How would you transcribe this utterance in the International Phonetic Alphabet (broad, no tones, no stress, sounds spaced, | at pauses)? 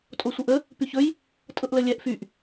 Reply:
tʼ o sʷ ɤ ʔ ə | p y ç ɵ j | tʼ ɤ ʔ l ə lʲ ɛ ʔ f y ʔ